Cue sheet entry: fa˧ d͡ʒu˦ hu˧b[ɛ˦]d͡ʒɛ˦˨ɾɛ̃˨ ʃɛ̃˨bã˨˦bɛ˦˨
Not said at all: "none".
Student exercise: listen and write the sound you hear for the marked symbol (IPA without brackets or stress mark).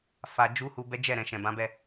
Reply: ɛ˦